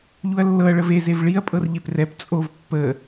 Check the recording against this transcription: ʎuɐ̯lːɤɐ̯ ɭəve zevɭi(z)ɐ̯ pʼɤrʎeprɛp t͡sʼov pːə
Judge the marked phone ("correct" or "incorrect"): incorrect